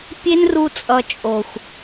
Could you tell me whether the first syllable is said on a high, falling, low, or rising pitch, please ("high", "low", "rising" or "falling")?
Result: high